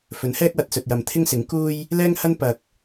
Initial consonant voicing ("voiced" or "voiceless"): voiceless